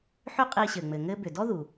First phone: ħ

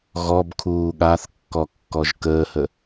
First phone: ɣ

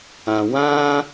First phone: ã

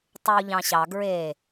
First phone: tˤ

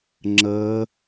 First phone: ŋ͡ǁ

